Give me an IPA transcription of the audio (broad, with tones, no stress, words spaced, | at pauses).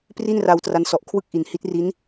pri˥˩nra˧w tra˦˥nsɔ˨˩ʔ kʰwɯ˥˩k̚ʔi˨˩n hi˦˥t̚ri˦˥n